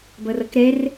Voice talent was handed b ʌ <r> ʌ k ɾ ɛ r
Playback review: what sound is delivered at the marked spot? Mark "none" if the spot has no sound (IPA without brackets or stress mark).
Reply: r